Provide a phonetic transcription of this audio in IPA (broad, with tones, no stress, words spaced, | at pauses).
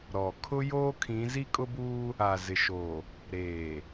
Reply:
ɾɔ˨ kʰʊ˦joː˦kʰĩ˨˦ zi˦kʼʊ˦buː˦ | a˨zɪ˨ʃo˨ | ɾeː˨